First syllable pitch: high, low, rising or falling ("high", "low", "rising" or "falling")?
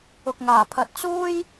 low